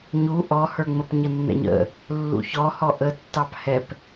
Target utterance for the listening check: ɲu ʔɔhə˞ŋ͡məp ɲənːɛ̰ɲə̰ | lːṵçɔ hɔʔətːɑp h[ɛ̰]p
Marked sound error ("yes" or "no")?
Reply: yes